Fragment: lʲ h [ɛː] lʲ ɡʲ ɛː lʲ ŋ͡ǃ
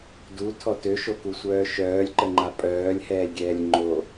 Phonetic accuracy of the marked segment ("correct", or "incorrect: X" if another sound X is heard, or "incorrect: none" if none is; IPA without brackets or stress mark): correct